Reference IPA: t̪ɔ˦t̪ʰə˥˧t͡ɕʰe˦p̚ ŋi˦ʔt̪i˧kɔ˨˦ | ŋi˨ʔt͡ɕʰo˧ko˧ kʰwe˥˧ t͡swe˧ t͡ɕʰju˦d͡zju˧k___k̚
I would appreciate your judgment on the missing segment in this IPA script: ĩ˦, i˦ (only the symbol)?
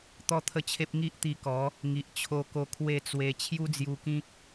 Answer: ĩ˦